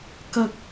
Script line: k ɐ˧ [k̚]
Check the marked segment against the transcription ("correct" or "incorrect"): correct